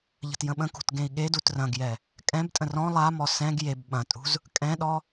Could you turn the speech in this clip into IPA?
ʎ ə̤ t j ə̃ ɓ ə̃ k ṳ t ɡ ẽ i̯ ɠ e d u t r ɐ̃ ɡ j ɛ | kʼ ɛ̃ b tʼ ə̃ r ɔ̃ lˠ a m ɔ s ɛ̃ ɡ j e b ɓ ɐ̃ tʼ ṳ z | kʼ ɛ̃ ɗ ɔ

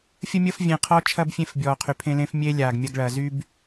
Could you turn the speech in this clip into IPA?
fʲ ə˦ mʲ əː˦ f vʲ ẽ˨ qʰ ɔ˧ t͡ʃʰ ɐ˦ b fʲ ẽ˦˨ f bʲ ɔː˨ qʰ y˨ pʰ ẽ˦ l ẽ˧ f mʲ eː˧ lʲ aː˨ ɡ mʲ ɐ˧ ɡ ɭ ɐː˨ z y˦ b

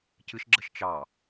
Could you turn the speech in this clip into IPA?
c ɨ ʃ ɡ͡ǁ ə ʃ t͡ʃ ɑ

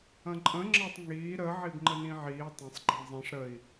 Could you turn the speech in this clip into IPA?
ɐ̃ ǃʼ ə̃ ŋ͡ǁ ɐ tˤ ŋ iː ɾ ə ʕ i b ŋ͡ǃ ə n ĩ ʕ iː tˤ ɐ̃ sˤ ɡ͡ǃ ĩ zˤ ĩ ʂ ɾ ə i̯

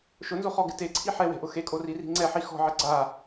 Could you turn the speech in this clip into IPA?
ʃ ʊ n z o χ ɔ ɡ ɪ t e ǀʰ i ħ ɛ w e̤ ʔ ʊ x e kʼ o r i r i̤ ŋ͡ǀ ɛ ħ i x ɔ̤ ʕ ɪ ɡ͡ǀ a

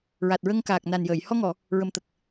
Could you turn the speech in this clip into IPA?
ɹ a˨˩ t̚ ɹ ə˧ ŋ k aː˨˩ k̚ n a˨˩ n j əː˨˩˨ j h ɔ˧ ŋ ɔ˨˩˨ | ɹ ə˨˩ m t̪ ə˨˩ k̚

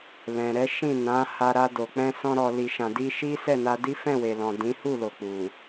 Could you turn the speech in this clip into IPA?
l ɛ̃˨ ɾ ɛ˨˦ ʃ ĩ˦˨ n ã˨˦ h a˧ ɾ a˧ d o˨ k͡p ɛ̃˧ s ɔ̃˧ ɾ ɔ˨ l i˨ ʃ ã˨ d i˧ ʃ i˦ s ɛ˦˨ n a˧ d i˦ f ɛ̃˦˨ w e˨ l ɔ̃˨ d ĩ˨˦ h u˦˨ l o˨ k͡p u˨

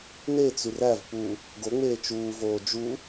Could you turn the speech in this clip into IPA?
n e t͡s y r æ v p u | ɡ o ŋ͡m eː t͡ʃ uː v oː d͡ʒ u

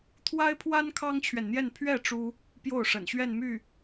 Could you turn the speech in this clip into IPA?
t̪ʰ w a˥ ɪ̯ pʰ w a˥ n kʰ ɑ˥ ŋ t͡ɕʰ ɥ ɛ˨ n n̪ j ɛ˥˧ n pʰ ɥ ɛ˥˩ ʈ͡ʂ u˥ | p j o˥˩ ʊ̯ ʂ ə̰˨˩ n ɕ ɥ ɛ˥˧ n m y˥˩

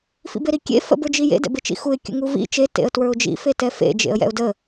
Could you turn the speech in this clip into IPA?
f ḭ b e ɾ i kʲ ḛ f ə̰ b ə˞ d͡ʒ i j ḛ d ɛ̰ b e t͡ʃ ḭ x u ɪ̯ kʲ ə̰ ŋ u v ḭ t͡ʃ e t ḛ ə̯ t w ə˞ ʊ̯ d͡ʒ ḭ f e t ɛ f ḛ d͡ʒ ḛ ə̯ j ɛ̰ ʊ̯ d ə

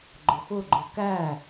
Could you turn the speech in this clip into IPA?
ɡ͡ǃ ʊ x ʊ ɡ͡ǃ ʊ k æ

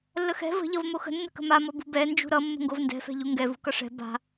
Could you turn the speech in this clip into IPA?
lː ə x ɛ̤ v ə̤ ʎ ʌ v m o x ə̤ nː ə̤ k ə̤ m a m ɔ b ṳ b ɛ n d͡ʒ ṳ ɾ ʌ mː ə̤ ŋ ɡ o v n d ɛ̤ f ɛ̤ ʎ u ŋ ɡ ɛ v ṳ k ʌ ʂ ɛ̤ b a̤

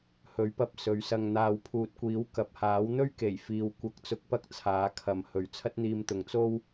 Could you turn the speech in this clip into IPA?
h ɵ˨˥ ɥ p ɐ˧ p̚ s ɵ˨˧ ɥ s ɐ˧ ŋ n̪ aː˨ w pʰ uː˨ t̚ kʷ iː˨˥ w k ɐ˨ p̚ h aː˨˥ w n̪ ɵ˧ ɥ k e˨˩ j f iː˨ w kʷ ɐ˨˥ k̚ t͡s ʊ˨ k̚ p ɐ˧ k̚ t͡sʰ aː˨˥ kʰ ɐ˨ m h ɵ˨ ɥ t͡sʰ ɐ˥ t̚ n̪ iː˧ m t̪ ʊ˨ ŋ t͡s o˧ w

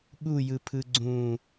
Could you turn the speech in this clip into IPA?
ɠ u j ɯ pʰ ɯ ɡ͡ǀ ũ

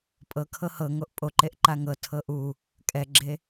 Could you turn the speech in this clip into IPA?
pʼ ɤ kʰ ɤ h ɤ ŋ o ʔ pʼ o ǃ e ʔ ǃ a ŋ ɤ tʰ ɤ ʔ u | kʼ ɛ ɡ͡ǁ e

